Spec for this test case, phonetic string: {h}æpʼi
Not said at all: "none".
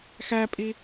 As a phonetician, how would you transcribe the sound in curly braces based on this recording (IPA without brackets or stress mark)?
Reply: x